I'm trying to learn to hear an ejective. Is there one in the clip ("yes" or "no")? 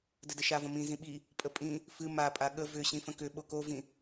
yes